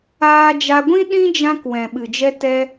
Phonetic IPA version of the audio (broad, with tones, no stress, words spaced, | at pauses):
aː˦d͡ʒa˦ ɡʷĩ˦ɗĩ˦d͡ʒã˧k wɛ̃˨ɓɨ˨d͡ʒɛ˧ tɛ˦